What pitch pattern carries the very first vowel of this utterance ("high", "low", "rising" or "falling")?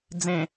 low